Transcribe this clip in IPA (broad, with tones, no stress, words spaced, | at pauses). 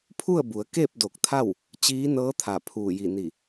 pʰu˥˨ə̯bu˩˧ə̯ke˥˨p̚ do˧˩k̚t̪ʰa˥˨w | t͡ɕiː˧˥nɤː˧˥t̪ʰa˧˩ pʰuː˧˩ji˧˩ni˧˩